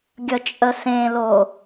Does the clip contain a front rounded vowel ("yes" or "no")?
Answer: no